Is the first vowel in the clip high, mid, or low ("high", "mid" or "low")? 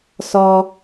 mid